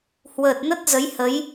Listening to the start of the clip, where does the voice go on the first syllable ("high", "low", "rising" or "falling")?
low